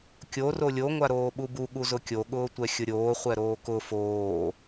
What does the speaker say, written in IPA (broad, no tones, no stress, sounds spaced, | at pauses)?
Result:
kʲ o r o lʲ o ŋʷ a ɾ oː ɓ u b u ɠ u z ʊ kʲ o ɠ ʊː tʷ ɛ xʲ ʊ ɾʲ oː χʷ ɛ ɾ oː k ʊ f oː